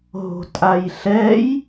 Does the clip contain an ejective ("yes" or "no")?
yes